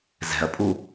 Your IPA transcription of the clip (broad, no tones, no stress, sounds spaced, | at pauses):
z ɛ̤ ɐ̯ pʼ u